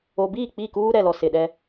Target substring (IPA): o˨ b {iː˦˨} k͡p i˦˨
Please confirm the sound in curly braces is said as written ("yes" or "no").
yes